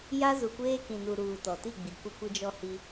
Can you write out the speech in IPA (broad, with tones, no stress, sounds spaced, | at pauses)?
j a˦ z u˨ kʷ eː˦ k ĩ˨ n u˨ ɾ uː˨ t ɔ˨ t i˦˨ ɡ͡b i˨ kʷ ɪ˦ kʷ ɪ˦ d͡ʒ ɔ˦ h i˦